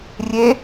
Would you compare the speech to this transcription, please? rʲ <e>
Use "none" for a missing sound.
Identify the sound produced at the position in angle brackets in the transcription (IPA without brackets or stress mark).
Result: e